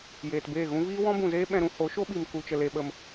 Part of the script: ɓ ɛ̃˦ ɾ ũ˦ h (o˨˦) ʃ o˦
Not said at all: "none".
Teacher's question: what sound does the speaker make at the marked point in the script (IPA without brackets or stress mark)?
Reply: o˨˦